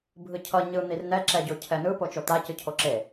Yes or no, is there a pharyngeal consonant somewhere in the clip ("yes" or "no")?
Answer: no